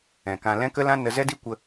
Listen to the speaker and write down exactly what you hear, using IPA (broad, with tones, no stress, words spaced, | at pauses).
ɛ̃˨kã˧ lɛ̃˦kə˦lã˦ nə˧zɛ˦di˦kʷə˧